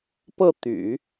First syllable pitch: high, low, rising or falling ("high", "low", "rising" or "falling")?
falling